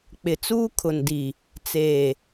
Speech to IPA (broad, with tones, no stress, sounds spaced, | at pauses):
k͡p ɪ˨ t͡s uː˦ kʰ ʊ˨ n d i˨ | t͡s eː˨